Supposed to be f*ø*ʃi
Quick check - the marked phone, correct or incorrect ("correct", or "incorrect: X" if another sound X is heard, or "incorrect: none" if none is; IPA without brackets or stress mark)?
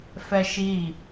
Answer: incorrect: ɛ